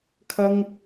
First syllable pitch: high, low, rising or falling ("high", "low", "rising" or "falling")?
high